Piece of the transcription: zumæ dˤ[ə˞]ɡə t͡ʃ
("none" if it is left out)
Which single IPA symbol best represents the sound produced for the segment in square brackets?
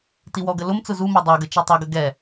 ə˞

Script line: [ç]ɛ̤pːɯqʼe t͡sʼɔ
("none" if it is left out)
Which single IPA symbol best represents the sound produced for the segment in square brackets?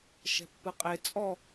ʃ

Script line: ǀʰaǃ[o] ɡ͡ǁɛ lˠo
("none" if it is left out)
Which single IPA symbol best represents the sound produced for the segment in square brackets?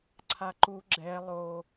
u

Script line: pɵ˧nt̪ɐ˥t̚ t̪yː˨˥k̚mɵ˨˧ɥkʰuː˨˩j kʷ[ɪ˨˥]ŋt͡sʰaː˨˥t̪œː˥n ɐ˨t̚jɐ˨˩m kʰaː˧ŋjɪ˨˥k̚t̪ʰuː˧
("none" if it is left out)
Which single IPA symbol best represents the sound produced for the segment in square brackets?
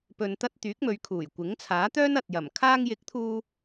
ɪ˨˥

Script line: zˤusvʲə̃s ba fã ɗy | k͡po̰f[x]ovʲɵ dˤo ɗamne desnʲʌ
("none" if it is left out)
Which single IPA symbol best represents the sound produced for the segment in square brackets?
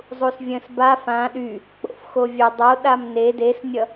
x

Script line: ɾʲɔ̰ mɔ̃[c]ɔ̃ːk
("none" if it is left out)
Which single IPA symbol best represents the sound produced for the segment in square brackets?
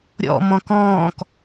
k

